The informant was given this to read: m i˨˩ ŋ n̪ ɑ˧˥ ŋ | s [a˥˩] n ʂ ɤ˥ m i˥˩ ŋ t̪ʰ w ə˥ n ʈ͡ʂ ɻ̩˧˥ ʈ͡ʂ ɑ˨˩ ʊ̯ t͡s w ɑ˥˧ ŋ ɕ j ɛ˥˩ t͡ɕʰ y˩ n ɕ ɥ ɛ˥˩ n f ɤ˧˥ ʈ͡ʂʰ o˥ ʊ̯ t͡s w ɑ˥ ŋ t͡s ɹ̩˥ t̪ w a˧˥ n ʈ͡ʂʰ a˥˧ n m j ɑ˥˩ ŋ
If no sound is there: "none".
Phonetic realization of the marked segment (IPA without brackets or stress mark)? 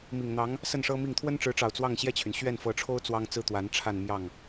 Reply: ə˥˩